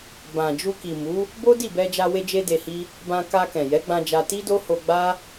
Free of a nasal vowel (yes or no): no